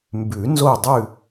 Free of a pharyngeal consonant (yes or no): yes